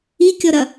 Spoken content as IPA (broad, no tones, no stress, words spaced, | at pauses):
ikʲɔɾɐ